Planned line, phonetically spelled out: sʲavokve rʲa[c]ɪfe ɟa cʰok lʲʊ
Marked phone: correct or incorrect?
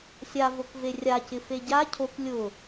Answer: correct